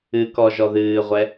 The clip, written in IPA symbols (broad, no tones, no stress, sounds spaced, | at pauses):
ɨ k ɔ ʒ ɔ ð ɨː ʁʷ ɛ